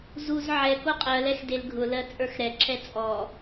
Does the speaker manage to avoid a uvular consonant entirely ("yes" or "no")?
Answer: no